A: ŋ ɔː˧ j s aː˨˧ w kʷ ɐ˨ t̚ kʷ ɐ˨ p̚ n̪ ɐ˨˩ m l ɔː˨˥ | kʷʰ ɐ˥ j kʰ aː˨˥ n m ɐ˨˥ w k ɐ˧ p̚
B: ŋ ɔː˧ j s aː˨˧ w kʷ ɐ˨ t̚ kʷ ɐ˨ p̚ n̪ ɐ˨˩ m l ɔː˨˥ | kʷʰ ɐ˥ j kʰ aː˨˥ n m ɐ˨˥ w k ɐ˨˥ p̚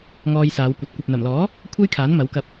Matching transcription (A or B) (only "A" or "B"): A